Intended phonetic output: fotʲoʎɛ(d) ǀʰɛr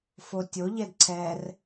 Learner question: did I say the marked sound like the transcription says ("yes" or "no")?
yes